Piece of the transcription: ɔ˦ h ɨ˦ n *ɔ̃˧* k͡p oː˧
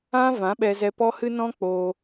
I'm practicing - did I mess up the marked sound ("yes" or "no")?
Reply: yes